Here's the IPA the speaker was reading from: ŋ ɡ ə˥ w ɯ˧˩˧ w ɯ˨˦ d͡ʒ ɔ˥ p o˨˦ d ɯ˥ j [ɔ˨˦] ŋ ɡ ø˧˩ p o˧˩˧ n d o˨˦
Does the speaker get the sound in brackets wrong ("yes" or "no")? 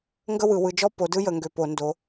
yes